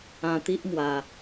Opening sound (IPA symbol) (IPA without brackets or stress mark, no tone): ã